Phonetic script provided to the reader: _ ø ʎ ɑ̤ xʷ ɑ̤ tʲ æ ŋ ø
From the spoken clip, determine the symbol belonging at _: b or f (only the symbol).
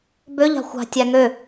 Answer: b